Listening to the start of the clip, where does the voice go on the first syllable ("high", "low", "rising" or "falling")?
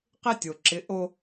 high